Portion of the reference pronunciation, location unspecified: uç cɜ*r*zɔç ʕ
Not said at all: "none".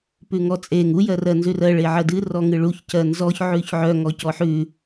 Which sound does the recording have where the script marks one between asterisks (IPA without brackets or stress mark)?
n